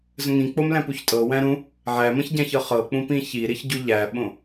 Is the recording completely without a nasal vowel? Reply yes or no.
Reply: no